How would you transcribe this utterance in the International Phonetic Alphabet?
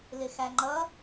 l ɪ x æ ŋ͡ǃ ʌ

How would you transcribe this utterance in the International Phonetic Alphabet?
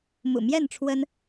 m ṵ˨˩ m j ɛ˥˨ n ʈ͡ʂʰ w ə˦ n

